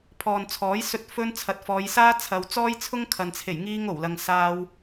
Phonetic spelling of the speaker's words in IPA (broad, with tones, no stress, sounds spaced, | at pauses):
pʰ ɔː˨ n t͡sʰ ɔː˨˥ j s ɵ˧ t̚ f ɵ˧ n t͡sʰ ɐ˨˥ t̚ f ɔː˨˧ j s aː˥ t͡sʰ ɐ˨ w t͡s ɔː˥ j t͡sʰ ʊ˥ ŋ kʰ ɐ˨ n t͡sʰ e˨˩ j ŋ iː˧ ŋ o˨˩ w l ɐ˨ ŋ s aː˧ w